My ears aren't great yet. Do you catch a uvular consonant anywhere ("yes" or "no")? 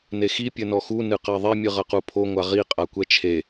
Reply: yes